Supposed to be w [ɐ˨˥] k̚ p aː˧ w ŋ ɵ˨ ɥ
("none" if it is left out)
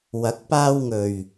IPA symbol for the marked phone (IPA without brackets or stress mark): ɐ˨˥